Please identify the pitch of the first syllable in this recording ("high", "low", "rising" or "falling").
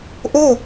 falling